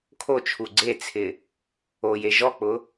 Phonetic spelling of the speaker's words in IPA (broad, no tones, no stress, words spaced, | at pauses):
kʰot͡ʃʰu ɡ͡ǀet͡sʰɪ | oje ʒɔk͡pʊ